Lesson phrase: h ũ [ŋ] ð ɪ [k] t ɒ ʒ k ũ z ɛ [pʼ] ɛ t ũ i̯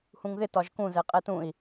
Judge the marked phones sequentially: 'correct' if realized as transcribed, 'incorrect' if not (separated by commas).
correct, incorrect, incorrect